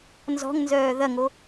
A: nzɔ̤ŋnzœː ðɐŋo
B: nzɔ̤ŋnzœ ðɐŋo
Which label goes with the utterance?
A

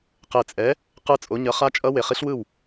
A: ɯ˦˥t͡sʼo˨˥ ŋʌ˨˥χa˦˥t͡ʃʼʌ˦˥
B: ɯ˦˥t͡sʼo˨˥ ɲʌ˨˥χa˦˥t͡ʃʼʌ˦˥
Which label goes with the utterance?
B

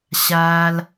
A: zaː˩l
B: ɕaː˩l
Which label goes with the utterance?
B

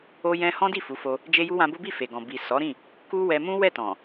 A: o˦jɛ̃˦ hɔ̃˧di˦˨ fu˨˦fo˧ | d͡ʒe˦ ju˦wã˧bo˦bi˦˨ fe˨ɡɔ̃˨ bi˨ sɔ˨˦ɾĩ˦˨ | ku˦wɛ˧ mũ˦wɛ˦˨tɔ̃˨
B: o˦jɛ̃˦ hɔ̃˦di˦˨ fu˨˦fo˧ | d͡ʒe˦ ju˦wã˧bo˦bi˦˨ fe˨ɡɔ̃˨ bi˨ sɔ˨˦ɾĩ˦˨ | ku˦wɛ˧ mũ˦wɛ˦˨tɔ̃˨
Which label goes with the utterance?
B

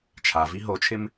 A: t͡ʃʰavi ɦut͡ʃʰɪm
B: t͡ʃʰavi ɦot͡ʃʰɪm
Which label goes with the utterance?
B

